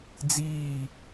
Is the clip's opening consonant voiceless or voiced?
voiced